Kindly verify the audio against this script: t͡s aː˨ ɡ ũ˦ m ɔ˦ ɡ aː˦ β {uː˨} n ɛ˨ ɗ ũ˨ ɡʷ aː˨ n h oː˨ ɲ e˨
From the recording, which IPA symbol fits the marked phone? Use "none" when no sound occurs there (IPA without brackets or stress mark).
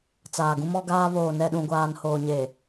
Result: oː˨